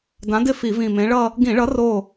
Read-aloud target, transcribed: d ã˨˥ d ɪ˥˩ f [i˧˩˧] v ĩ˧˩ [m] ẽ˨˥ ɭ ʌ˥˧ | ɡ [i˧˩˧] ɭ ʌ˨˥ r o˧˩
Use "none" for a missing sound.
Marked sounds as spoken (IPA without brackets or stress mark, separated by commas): i˧˩˧, m, ĩ˧˩˧